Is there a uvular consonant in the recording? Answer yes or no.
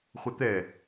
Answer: yes